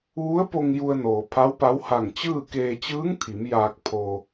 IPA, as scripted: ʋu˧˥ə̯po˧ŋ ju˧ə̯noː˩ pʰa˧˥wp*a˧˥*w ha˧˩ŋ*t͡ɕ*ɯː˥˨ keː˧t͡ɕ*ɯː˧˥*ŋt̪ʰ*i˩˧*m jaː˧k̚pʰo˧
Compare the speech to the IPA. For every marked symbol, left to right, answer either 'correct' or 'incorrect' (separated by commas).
correct, correct, correct, correct